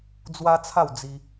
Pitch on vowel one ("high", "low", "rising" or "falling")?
high